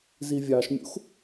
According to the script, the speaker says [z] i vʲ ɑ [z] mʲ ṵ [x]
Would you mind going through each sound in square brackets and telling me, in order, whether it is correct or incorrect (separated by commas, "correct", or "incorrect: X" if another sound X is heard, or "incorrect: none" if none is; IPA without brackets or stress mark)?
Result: correct, incorrect: ʃ, correct